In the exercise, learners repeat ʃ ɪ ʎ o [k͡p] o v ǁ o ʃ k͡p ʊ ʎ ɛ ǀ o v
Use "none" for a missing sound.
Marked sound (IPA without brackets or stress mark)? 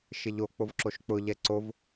k͡p